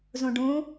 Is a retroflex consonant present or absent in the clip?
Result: present